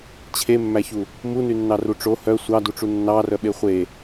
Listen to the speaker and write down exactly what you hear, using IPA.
t͡ɕʰ e mː æ ç u | m u n y nː ɑ r u ʈ͡ʂ o h œ sʷ ɑ d u ʈ͡ʂ u nː ɑ r œ ɓ e χʷ e

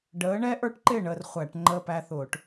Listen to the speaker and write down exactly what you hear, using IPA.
ɖ əː˨˦ ɳ ɛ˦ ʔ ə˞˨˦ ʈ ǃ ɪ˥˨ ɳ əː˥˨ r χʷ æ˧˩˧ ʈ ŋ͡ǃ əː˦ p æ˦ θ ʊː˧˩˧ ʈ

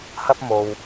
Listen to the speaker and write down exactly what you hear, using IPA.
h ɐ˥ p̚ m o˧ w

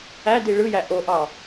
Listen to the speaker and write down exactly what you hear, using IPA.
æ d i ɭ ɯ j æ ʔ o ʔ ɑ

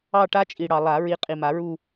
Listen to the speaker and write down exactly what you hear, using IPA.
ɑ˥˧ ʈ a˥ t͡ʃʼ i˨ ɽ ɑ˨ lˠ a˨˩˦ ɹ i˨˦ qʼ i˨ m a˨˩˦ ɹ u˥˧

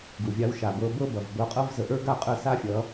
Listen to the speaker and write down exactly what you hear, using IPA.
ɡ u˨ vʲ a˧ w ʃ a˨ b ɤ˧ b ɤ˦ b ʌ˨ v b ɤ˧ qʼ ɤ˦ v z ə˨ ʔ ə˞˦ ɡ a˦˨ qʼ ə˦˨ s a˦ fʲ ʌ˨˦

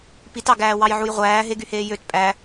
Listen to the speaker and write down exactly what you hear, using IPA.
p i t ɑ ɡ æː w ɑ j ʕ u j ʁʷ æː ɦ e ɡ y h eː j ø t pʼ æ

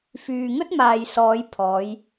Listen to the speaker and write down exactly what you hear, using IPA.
f yː˨ ŋ ɵ˥ t̚ m aː˨ j s ɔː˨˧ j pʰ ɔː˨˧ j

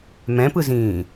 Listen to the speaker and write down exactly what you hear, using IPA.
m ɛ̃ p ɯ z ĩː

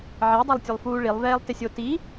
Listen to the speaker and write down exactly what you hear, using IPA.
ʕ ɛ dˤ e lˠ tʲ ʊ lˠ f uː ɭ i lˠ v ɛː lˠ t ɪ sʲ o t i

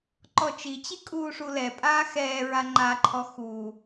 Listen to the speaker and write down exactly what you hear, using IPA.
ǃ ɔ t͡ʃ i t͡ɕ i kʼ uː ʂ u l ɛ pʼ aː x ɛː ɹ a ŋ͡ǃ a ǃʰ ɔ x uː

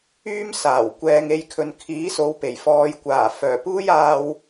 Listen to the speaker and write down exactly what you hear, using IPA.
yː˥ m s aː˨˩ w kʷ ɛː˨ ŋ e˧ j kʰ ɵ˨ n kʰ iː˨˥ s o˨˧ w p e˨˩ j f ɔː˨ j kʷ aː˨˩ f œː˨˩ p uː˥ j aː˧ w

